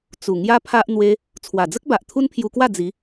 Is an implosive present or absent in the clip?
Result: absent